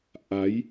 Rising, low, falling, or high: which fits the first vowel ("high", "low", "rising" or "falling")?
rising